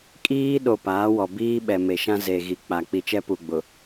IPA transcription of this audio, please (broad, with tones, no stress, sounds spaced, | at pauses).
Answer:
kʼ iː˦ ɗ o˨ p aː˨˦ w ɔ˨ b iː˦ ɓ ɛ˨ m e˨ ʃ ã˦ z e˨ ɣ i˨ k͡p a˨ k͡p i˨ t͡ʃ ɛ˦ p u˨ ɡ͡b ʊ˨